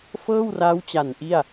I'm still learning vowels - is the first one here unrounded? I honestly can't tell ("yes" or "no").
yes